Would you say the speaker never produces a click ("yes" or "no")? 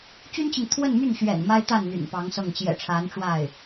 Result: yes